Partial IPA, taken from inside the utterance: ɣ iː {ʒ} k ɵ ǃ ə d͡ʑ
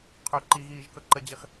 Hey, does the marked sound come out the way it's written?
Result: yes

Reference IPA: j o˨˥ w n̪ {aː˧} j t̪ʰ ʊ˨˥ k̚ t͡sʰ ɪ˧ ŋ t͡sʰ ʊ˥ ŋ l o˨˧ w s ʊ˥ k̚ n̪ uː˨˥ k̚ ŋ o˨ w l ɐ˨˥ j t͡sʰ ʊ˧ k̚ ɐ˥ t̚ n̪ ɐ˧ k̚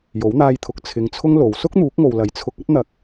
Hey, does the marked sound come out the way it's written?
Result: yes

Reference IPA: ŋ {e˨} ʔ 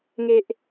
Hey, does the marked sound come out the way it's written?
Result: no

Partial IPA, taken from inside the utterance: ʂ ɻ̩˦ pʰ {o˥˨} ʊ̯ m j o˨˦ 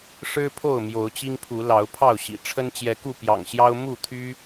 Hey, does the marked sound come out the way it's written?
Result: yes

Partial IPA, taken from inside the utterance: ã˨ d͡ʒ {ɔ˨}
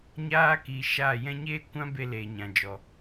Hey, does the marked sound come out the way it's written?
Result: yes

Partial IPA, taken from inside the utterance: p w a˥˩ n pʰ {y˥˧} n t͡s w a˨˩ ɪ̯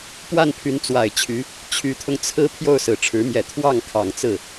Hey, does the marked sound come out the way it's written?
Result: no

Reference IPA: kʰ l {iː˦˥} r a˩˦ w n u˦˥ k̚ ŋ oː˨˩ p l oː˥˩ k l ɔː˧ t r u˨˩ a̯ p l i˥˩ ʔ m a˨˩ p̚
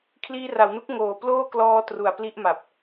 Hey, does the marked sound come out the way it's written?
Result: no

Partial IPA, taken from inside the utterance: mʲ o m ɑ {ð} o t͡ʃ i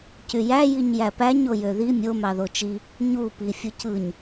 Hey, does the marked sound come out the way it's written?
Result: yes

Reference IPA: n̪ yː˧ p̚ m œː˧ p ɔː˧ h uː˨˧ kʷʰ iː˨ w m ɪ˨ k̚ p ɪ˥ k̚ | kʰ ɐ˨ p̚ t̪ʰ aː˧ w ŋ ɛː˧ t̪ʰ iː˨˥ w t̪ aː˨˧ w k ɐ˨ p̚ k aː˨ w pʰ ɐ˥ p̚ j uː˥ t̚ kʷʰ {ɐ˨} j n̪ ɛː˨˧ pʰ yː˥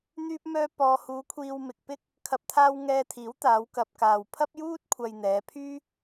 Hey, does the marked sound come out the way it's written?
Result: yes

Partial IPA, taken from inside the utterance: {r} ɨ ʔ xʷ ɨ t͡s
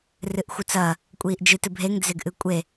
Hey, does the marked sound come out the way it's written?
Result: yes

